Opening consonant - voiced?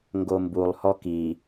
yes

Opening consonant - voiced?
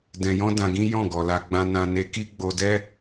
yes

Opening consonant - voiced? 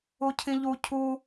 no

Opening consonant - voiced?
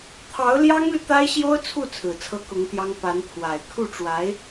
no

